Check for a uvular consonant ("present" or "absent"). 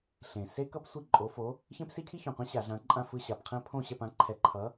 present